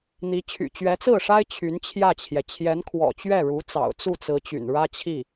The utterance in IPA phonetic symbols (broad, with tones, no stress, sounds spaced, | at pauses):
n̪ i˧˥ t͡ɕʰ y̰˨˩ t͡ɕ ɥ ɛ˧˥ t͡s ɹ̩˥˩ ʂ a˥ ɪ̯ t͡ɕʰ y˧˥ n t͡ɕʰ j ä˥˩ t͡ɕʰ j ɛ˩ t͡ɕʰ j ɛ˧˥ n kʰ w ɔ̰˨˩ t͡ɕ ɥ ɛ˥˩ ɻ u˧˥ t͡s ɑ̰˨˩ ʊ̯ t͡s u˥˩ t͡s ɹ̩˧˥ t͡ɕ y̰˨˩ n ɻ ä˥ t͡ɕʰ i˥˩